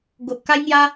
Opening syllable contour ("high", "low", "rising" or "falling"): low